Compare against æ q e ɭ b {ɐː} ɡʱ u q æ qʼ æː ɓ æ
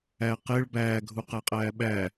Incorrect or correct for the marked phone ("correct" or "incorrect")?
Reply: incorrect